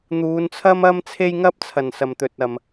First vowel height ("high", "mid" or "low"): high